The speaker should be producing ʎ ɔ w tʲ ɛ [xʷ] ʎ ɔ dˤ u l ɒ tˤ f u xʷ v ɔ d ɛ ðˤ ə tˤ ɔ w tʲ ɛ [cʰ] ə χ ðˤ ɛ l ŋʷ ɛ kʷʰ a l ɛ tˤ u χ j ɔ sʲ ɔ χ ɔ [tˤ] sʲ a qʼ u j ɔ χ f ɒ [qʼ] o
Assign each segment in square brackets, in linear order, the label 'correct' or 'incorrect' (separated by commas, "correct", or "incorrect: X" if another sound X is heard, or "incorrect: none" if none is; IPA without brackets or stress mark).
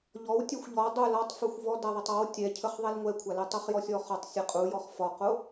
correct, correct, correct, incorrect: q